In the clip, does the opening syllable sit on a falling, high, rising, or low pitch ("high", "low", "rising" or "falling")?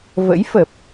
rising